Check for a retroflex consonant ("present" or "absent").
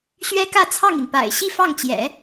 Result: absent